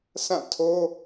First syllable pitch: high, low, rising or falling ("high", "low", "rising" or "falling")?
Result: falling